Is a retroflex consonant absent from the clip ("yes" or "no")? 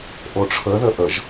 no